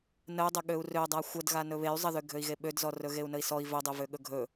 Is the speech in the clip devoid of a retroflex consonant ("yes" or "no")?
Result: yes